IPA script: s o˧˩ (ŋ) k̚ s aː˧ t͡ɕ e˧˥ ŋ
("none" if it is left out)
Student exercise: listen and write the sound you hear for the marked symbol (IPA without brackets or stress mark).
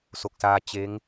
none